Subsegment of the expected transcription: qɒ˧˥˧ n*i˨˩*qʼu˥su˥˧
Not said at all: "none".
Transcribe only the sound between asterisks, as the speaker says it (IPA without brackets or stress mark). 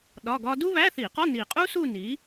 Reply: i˨˩